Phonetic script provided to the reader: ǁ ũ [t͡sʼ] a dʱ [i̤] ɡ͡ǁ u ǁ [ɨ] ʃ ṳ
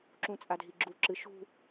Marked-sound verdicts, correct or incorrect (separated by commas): correct, incorrect, correct